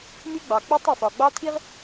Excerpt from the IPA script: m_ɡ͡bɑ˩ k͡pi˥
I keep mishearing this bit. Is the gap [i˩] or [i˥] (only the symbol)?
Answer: i˥